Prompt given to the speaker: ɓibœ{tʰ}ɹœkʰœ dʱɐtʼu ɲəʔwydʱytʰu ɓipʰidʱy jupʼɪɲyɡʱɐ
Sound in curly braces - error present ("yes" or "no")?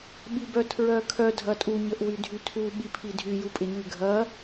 no